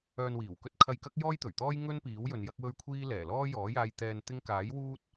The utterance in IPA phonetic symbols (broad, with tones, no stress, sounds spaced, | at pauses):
œː˧ n w iː˨˩ w k ɵ˥ t̚ kʰ ɐ˧ j k ɐ˥ k̚ j ɔː˥ j t̪ ɵ˨˩ ɥ t̪ ɔː˥ j ŋ ɵ˥ n p iː˨˥ w j ɵ˨ n j ɐ˥ k̚ w ɵ˥ ɥ kʷʰ iː˥ l ɛː˨˩ l ɔː˥ j ɔː˨˥ j aː˧ j t̪ ɛː˧ n t̪ ɪ˥ ŋ k aː˨˥ j w uː˥ t̚